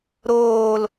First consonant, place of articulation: alveolar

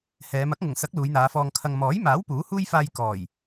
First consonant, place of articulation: glottal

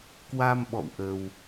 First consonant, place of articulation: velar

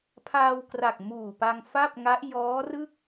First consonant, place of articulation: labial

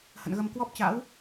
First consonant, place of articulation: glottal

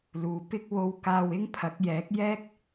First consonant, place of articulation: alveolar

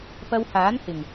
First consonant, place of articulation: labial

